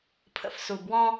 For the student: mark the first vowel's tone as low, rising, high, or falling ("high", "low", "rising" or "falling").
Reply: low